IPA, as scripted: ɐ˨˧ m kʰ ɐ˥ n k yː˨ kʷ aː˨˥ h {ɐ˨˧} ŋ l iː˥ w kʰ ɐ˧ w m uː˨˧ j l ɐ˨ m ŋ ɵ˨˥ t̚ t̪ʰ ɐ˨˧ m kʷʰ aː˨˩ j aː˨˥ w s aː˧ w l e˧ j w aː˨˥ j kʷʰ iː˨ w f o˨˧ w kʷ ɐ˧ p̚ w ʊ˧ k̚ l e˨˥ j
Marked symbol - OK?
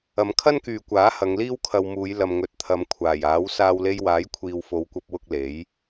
yes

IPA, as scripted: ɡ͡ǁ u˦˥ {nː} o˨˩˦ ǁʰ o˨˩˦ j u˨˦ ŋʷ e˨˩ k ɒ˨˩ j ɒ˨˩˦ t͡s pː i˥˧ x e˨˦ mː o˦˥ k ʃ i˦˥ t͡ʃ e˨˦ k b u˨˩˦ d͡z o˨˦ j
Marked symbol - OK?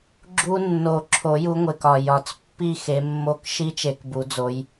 yes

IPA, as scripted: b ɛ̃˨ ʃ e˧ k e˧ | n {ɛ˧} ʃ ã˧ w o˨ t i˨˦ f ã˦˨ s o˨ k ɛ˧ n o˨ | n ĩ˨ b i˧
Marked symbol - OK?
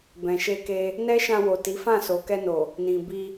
no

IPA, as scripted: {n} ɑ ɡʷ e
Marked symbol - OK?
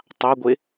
no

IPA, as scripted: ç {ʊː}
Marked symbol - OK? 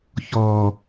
no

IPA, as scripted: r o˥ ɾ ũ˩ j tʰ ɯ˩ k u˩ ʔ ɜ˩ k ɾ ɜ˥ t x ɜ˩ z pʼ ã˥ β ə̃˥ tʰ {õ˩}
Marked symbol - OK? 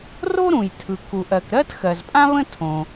yes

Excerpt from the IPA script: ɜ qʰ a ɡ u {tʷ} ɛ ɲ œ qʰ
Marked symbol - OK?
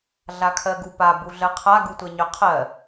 yes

